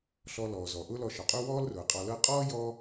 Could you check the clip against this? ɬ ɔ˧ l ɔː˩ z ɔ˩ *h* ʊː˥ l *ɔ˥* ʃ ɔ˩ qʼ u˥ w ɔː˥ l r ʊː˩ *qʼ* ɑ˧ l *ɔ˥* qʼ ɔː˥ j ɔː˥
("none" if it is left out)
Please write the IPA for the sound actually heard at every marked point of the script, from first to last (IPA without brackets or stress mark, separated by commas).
ʔ, ɔ˧, qʼ, ɤ˥